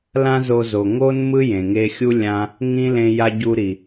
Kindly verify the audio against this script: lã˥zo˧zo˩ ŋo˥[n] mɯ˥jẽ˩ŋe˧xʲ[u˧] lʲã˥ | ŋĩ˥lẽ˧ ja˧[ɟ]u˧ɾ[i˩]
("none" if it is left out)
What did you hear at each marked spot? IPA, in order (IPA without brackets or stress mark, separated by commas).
n, u˥, ɟ, i˩